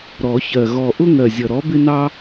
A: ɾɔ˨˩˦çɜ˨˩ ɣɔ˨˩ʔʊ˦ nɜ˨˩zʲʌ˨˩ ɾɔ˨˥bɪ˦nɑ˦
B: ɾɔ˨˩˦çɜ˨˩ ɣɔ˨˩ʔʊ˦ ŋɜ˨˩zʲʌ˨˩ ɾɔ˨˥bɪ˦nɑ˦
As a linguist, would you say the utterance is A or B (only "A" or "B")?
B